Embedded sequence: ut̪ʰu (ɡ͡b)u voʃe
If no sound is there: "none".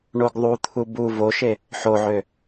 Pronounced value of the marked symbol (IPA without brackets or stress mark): b